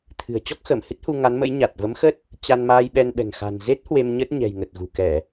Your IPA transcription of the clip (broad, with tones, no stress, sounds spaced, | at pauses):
t̪ʰ ɨ̤˨˩ ə̯ t͡ɕ ɔ˦˥ k̚ x əː˧˩ m h ɨ˦˥ t̚ h u˧ ŋ a˨˦ n m ə̰˧˥ j ɲ a˨˩ t̚ v ə˨˦ m x ə˦˥ t̚ | t͡ɕ a˧ n m aː˧ j ɓ ɛ˧ n ɓ ɛ̤˨˩ ŋ x a̤˨˩ n z e˦˥ t̚ h w e˧ m ɲ ə˦˥ t̚ ɲ ɛ̤˨˩ j ŋ ə˨˩ t̚ ɣ ṳ˨˩ k ɛ˧˩˨